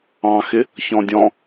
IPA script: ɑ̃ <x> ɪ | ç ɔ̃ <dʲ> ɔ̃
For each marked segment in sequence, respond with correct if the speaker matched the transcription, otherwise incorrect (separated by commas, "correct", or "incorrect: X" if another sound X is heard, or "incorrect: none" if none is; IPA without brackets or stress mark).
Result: correct, correct